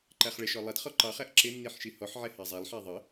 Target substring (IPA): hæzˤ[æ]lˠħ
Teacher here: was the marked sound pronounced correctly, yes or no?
yes